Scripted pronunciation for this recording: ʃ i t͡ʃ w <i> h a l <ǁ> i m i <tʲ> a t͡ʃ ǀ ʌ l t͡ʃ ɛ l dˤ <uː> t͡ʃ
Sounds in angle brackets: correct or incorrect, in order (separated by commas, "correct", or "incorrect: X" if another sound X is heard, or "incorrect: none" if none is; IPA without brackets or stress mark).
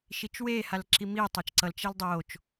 incorrect: e, correct, incorrect: tˤ, incorrect: oː